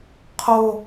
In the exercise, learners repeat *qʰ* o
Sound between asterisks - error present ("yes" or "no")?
no